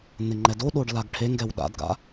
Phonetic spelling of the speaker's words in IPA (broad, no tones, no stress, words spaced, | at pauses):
nɪŋ͡ǃɛdoɗoɖ laɡʈʰeŋɡɛw ɗa̰dɡa̰